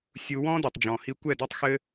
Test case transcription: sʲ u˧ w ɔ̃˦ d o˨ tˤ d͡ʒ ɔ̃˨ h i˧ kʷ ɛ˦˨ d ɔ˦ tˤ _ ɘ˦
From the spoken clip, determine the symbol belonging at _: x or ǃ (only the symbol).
x